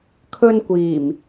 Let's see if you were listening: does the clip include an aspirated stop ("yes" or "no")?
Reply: yes